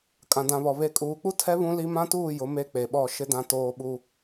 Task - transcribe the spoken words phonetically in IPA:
kʼ ã˨ d ã˨ β ɔ˨ β e˨ kʼ uː˨ k͡p u˦ tʰ ɛ˦ β ũ˦ l i˦ m ã˦ t uː˦˨ j ʊ˨˦ m e˦ k͡p e˨ ɓ ɔ˦˨ ʃ ɪ˦ d ã˦ t oː˦ ɓ u˦

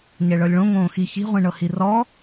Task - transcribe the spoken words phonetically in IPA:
ɲ ɛ ɭ ɤ lʲ ɭ õ ŋ õː x i ç i̤ ʁʷ ĩ ɳ ɤ h i r ɔ

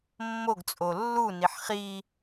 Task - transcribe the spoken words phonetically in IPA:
mː o ɡ t͡sʼ o lː u n i ħ χ i

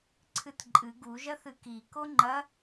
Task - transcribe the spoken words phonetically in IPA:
ǀʰ ɨ t ǃʼ ɨ ɡ u ʒ ɐ θ ɨ k i k o ŋ͡ǃ ɐ

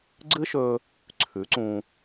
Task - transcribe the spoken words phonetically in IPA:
ɡ͡ǀ ɨ˦ ʃ ɵ˧ | ǀʰ ʉ˨˦ ǀ ũ˧

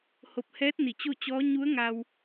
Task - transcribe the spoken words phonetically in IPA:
h o˧ p̚ h ɛː˧˥ t̚ n i˧˩ t͡ɕ o˥˨ t͡ɕ ɔː˧˥ ɲ u˧˥ ə̯ ŋ a˧ w

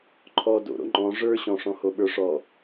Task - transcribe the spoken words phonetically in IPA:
ǃʰ ɔ d o̰ ɾ o̰ ŋ͡ǃ ɔ̃ ʐ ə˞ ɕ ɔ̃ ʂ ɔ̃ h o ɓ ə˞ ʂ ɔ

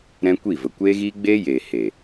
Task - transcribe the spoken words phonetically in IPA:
ɾ ɛ̃˦ kʷ i˦˨ v ə˨ kʷ eː˦ ɣ iː˦ ɡ͡b eː˦ j eː˨ h eː˨

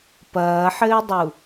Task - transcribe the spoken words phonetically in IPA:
p ɐː ħ ɘː dˤ u

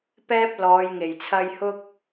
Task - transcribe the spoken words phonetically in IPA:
p ɛː˥ p̚ l ɔː˨˧ j ŋ e˨˩ j t͡sʰ ɐ˧ j h ʊ˥ k̚

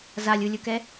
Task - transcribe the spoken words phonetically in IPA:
z a lʲ u lʲ ʊ k ɛ

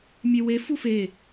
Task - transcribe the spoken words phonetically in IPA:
mʲ e w e f u f e

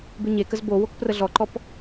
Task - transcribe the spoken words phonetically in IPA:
b ʉ ɲ e k ə z b o w o k p r ə ɮ ɔ ǃ ɔ p

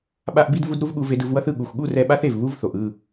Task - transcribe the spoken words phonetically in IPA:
ɓ a˦ ʔ b i˦ d v u˦ d ɾ u˦ v ɠ u˧ v e˧ d ɯ˧ v w ʌ˦ θ ɯ˧ ɠ u˨ xʷ ɠ u˦˨ r ɛ˧ ɓ a˦ θ e˨ v β u˦ v θ o˨ ʔ ɯ˦˨

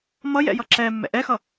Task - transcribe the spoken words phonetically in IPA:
m ʌ j ɛ̰ j ʌ ǁ ɛ mː ɛ̰ ʔ ɛ x ʌ

